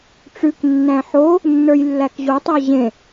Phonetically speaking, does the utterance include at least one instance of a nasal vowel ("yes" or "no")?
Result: yes